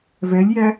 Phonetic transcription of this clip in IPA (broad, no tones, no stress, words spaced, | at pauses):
vɛlʲjæ